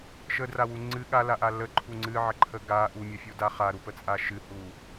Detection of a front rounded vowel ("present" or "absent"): absent